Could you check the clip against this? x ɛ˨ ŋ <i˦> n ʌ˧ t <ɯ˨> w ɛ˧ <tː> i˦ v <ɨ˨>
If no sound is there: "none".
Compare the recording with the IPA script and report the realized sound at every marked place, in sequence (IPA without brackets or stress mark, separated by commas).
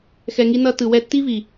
i˧, ɯ˨, tː, i˨